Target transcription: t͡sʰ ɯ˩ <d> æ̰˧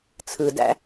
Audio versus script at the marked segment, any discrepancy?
no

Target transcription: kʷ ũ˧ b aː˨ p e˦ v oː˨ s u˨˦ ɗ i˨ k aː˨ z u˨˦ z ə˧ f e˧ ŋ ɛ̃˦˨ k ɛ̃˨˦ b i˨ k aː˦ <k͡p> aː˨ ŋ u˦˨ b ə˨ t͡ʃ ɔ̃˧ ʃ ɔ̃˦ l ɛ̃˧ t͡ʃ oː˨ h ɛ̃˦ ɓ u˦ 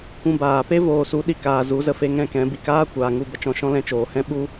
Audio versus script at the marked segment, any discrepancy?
yes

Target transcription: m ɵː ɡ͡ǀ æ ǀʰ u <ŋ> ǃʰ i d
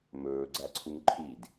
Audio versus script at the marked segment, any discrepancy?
no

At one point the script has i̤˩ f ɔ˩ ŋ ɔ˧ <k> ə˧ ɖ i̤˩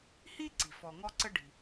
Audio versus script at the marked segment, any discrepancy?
yes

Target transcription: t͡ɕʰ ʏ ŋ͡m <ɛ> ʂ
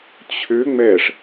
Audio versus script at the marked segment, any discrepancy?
no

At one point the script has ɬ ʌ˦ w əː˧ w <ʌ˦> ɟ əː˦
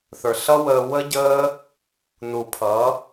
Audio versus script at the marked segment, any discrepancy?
yes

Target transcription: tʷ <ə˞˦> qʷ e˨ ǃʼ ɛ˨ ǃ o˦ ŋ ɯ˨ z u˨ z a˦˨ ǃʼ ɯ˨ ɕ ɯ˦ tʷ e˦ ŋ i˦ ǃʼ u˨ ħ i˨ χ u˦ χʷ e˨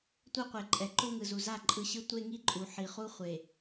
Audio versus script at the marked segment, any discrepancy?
yes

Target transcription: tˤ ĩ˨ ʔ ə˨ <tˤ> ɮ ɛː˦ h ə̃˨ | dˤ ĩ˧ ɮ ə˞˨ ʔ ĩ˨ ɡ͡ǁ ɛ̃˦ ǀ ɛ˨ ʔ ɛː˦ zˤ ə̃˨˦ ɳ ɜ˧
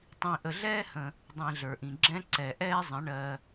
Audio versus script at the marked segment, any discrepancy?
yes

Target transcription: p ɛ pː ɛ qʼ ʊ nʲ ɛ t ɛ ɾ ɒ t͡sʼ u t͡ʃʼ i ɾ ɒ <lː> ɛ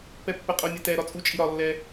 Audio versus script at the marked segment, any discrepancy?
no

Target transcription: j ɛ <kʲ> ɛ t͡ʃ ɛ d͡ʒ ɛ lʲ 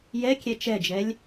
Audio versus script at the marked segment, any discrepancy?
no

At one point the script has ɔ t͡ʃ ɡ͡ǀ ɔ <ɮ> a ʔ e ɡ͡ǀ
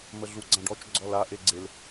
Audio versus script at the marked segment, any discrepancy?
yes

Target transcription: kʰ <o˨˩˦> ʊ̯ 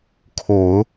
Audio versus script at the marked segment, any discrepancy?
no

